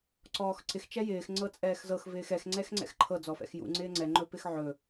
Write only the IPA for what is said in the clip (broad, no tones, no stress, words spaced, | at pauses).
ǀɔːxǀɪx t͡ʃɛjɪːx ŋ͡ǀɤt͡sʼɛːxzɤx vɪːxɛx ŋ͡ǀɛxŋ͡ǀɛ̰xǃʰɤ d͡zɔfɛ̰xjṵ ŋ͡ǀɪːŋ͡ǀɛ ŋ͡ǃɵpɪxʕɵ